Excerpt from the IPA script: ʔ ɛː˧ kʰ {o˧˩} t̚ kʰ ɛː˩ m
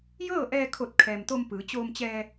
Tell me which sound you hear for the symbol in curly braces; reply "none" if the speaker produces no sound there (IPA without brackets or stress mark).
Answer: o˧˩